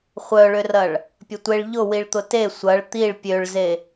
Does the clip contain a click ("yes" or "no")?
no